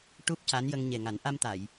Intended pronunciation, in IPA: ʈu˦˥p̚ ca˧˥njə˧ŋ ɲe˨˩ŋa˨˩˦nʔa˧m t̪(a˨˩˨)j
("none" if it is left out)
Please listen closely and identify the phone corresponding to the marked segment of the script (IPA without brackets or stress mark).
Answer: a˨˩˨